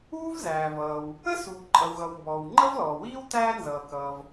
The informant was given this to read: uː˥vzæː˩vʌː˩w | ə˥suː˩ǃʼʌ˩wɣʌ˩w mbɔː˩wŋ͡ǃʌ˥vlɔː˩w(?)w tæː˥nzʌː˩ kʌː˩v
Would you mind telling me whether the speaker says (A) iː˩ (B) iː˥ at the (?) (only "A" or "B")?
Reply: B